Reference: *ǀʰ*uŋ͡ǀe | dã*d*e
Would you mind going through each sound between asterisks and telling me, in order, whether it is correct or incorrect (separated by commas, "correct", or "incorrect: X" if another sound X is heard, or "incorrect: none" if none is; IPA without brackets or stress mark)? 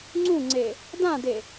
incorrect: ŋ͡ǀ, correct